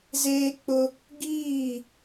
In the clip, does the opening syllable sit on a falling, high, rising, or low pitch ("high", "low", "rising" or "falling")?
high